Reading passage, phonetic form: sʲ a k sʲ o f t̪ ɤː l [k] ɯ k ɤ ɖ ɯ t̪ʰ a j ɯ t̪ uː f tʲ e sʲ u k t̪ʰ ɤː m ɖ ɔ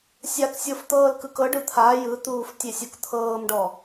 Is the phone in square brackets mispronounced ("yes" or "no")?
no